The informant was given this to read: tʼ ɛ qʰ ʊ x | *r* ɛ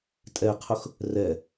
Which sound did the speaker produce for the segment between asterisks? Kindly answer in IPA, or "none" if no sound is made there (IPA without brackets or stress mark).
r